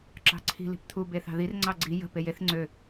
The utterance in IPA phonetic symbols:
ǁ ɑ̤ ǀʰ i̤ l i̤ p t̪ʰ u b e θ ɑ̤ ð i r ŋ͡ǀ ɑ ɡ͡ǀ i j ə̤ p e j e θ ŋ͡ǀ ø

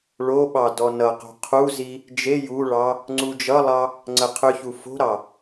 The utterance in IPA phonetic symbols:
ɭ o ɓ ɑ d ɔ n ʌ q o̤ qʰ u z i | d͡ʒ e j u ɭ ɑ | ŋ͡ǀ u d͡ʒ ʌ lˠ ɑ | ŋ͡ǀ ə qʰ ʏ ç u f o̤ ɾ ɑ

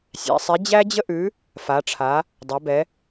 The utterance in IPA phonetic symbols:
sʲ æ̰˩˧ sˤ i˨˥ d͡ʑ æ˥ d͡ʑ ə˥ ʔ ʉ˨˥ | f a˩˧ ʈ͡ʂʰ a˩˧ | dˤ æ˩˧ b ɛ˩˧

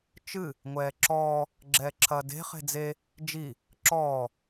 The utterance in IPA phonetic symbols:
t͡ʃ ɨ | ŋʷ ɛː ǁ ɔː | ɡ͡ǁ ɛː ǁʰ ɐː d e̤ χ e̤ d͡z e | d͡ʒ i | ǁ ɔː

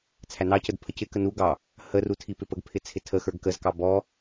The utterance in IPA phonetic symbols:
t͡sʰ æ n ɑ c ə d pʰ ə c ɪ k ə n u ɡ ɑ | h ə r u tʰ i p ɪ p ə ɡ pʰ ɪ t͡sʰ ɪ tʰ ə x ə˞ ɡ k ə z k ɑ b ɔ

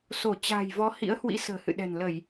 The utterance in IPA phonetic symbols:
s o˧˩ t͡ɕ a̤ː˨˩ j v ɔ˨˦ h ḭ˧˥ ə̯ h w ḭ˧˥ s ə̤ː˨˩ h ɨ̰˧˨ ɗ ɛ̤˨˩ n l ə˧˩˨ j

